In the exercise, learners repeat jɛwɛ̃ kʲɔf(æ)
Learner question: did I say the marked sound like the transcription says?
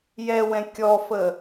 no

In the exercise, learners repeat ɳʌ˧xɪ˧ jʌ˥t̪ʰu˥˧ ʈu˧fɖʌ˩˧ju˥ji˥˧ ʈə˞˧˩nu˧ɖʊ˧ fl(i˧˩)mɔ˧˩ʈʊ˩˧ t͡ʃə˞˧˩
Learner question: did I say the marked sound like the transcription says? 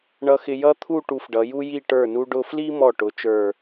no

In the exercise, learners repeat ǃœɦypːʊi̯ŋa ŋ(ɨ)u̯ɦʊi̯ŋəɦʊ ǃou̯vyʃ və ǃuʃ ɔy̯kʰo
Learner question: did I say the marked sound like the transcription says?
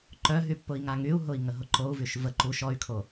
no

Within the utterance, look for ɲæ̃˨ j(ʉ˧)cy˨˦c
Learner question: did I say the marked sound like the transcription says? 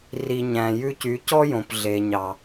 yes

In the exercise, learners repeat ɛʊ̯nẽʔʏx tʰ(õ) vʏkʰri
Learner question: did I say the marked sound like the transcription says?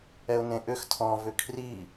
no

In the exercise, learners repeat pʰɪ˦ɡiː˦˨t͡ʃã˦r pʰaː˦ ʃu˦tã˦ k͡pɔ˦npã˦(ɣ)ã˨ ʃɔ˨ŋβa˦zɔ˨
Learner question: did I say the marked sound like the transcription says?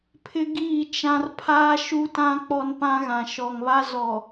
yes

